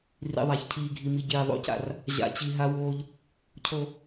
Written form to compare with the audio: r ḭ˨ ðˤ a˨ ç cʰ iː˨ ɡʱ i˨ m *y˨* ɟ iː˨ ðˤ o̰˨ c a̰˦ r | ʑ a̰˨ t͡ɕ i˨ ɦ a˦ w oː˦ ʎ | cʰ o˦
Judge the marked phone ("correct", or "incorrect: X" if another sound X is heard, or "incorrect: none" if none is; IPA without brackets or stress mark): incorrect: i˨